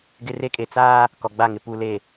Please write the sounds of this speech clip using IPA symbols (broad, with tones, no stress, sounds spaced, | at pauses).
ɡ ɪ˦ r e˦ kʼ e˨ t͡s aː˦ | k ɔ˨ ɡ͡b a˦˨ ŋ ɪ˨ p u˨ l e˨